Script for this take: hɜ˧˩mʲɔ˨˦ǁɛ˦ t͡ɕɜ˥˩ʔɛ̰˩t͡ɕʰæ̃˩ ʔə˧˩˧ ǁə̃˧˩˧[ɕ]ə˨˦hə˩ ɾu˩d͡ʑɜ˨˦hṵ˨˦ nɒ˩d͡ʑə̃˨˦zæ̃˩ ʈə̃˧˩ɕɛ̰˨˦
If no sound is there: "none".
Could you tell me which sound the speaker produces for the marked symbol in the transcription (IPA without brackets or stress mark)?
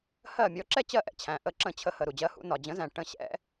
t͡ɕʰ